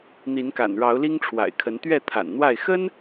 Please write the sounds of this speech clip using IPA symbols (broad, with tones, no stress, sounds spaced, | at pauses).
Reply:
n̪ i˨˦ n k a̰˨˩ n ɻ ɑ˨˦ ʊ̯ l i˦ ŋ ʈ͡ʂʰ w a̰˨˩ ɪ̯ kʰ ə˨˦ n t̪ ɥ ɛ˥˨ t̪ʰ a̰˨˩ n n̪ w a˥˨ ɪ̯ x ə˦ n